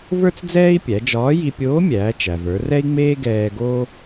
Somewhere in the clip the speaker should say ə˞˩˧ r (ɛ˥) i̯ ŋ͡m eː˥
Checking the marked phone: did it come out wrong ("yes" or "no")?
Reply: no